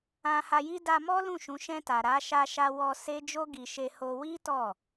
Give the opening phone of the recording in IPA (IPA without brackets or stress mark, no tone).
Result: ã